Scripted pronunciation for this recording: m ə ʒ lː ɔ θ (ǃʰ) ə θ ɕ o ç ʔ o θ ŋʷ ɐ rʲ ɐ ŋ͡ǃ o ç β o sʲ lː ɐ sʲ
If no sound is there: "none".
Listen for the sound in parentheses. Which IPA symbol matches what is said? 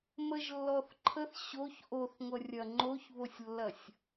ǃʰ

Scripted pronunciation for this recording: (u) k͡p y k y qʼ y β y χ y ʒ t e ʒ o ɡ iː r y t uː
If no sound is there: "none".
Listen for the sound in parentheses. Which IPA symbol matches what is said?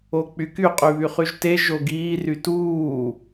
o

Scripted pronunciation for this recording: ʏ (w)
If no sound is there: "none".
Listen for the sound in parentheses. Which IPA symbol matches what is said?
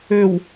w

